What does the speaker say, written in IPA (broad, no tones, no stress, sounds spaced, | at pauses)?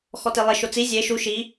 x ɔ t e lˠ ɪ ʃ o t͡s i zʲ e ʃ u ʃ i